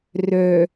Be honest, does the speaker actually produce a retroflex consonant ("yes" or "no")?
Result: no